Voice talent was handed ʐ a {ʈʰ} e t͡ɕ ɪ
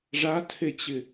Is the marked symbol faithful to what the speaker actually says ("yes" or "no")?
no